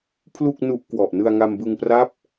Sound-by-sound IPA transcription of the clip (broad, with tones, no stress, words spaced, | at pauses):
pʰlu˥˩k̚nu˦˥ʔ kwɔ˨˩ʔnɯ˧a̯ŋa˧m bɯ˧ŋpra˦˥p̚